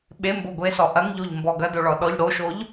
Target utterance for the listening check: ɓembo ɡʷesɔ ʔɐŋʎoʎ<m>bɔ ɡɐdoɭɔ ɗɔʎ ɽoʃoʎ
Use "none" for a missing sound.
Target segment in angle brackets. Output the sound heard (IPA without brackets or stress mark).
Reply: m